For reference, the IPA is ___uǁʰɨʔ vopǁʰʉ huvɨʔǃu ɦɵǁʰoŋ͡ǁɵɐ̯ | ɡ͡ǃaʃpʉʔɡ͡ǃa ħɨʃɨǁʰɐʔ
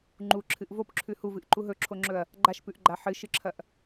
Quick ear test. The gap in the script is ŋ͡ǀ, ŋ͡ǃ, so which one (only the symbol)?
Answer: ŋ͡ǃ